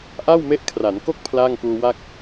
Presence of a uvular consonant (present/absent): absent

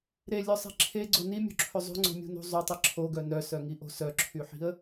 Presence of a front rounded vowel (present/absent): present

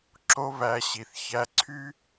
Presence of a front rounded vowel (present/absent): present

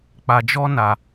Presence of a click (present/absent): absent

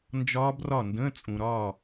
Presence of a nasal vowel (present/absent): present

